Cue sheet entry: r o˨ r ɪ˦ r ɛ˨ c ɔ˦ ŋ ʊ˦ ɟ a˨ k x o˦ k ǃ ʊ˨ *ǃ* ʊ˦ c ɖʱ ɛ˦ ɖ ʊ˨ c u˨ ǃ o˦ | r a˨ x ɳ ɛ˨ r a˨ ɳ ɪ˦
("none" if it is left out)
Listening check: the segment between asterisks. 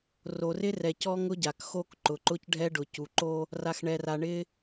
ǃ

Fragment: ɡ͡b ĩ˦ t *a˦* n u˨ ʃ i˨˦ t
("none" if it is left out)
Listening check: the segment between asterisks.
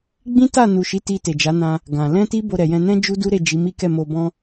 a˦˨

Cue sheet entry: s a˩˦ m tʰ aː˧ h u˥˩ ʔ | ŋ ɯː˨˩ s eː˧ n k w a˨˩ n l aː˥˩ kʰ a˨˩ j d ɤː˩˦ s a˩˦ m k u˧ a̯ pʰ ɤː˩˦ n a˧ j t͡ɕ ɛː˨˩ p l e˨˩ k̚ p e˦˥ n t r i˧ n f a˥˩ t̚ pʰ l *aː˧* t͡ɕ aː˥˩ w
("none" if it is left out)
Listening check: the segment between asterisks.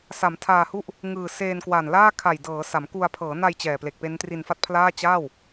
aː˥˩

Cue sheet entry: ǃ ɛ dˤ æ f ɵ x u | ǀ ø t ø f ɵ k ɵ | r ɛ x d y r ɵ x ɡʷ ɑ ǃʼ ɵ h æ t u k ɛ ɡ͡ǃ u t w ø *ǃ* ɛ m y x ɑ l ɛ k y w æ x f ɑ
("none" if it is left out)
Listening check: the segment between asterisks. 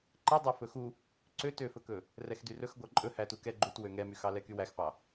ŋ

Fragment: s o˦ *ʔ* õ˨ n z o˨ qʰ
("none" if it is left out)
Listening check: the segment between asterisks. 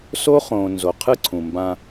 χ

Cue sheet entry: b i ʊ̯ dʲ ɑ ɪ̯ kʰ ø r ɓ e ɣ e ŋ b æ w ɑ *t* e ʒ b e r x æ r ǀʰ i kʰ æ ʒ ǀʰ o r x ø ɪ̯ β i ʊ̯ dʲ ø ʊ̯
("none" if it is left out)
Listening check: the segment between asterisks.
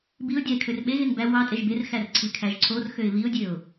tʼ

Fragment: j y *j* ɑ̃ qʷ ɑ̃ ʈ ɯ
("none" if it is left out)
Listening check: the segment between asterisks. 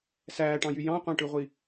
j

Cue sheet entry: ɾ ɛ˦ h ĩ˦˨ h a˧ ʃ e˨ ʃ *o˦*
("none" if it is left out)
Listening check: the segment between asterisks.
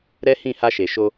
o˧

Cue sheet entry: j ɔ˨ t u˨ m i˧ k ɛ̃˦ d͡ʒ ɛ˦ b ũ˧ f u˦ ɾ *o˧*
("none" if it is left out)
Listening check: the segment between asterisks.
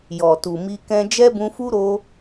o˧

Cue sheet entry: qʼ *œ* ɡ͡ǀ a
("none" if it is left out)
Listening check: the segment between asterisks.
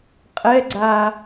ɛ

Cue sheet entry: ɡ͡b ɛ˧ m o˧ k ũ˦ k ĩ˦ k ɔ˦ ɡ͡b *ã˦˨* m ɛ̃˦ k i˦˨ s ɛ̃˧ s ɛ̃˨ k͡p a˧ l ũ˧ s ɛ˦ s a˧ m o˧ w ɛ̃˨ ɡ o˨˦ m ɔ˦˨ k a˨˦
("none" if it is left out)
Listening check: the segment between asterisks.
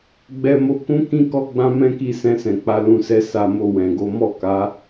ã˦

